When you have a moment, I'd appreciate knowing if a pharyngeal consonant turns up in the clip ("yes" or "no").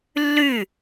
no